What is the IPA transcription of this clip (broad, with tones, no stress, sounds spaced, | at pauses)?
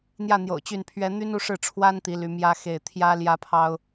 n̪ j ä˥˩ n̪ j o̰˨˩ ʊ̯ t͡ɕ y˥˩ n pʰ ɥ ɛ˥ n̪ y˥ n u˥˧ ʂ ɻ̩˥˩ ʈ͡ʂʰ w a˥ n t̪ i˧˥ l y˧˥ m j ä˥ x e˥˩ ɪ̯ t̪ʰ j ä˥ l j ä˥ pʰ ɑ˥ ʊ̯